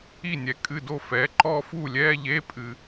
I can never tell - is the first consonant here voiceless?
no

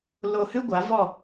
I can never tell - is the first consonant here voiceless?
no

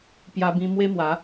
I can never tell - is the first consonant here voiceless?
yes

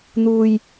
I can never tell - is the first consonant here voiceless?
no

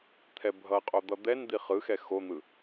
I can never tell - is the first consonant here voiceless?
yes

